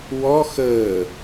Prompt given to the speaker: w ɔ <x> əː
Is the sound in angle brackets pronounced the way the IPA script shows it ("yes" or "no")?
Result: yes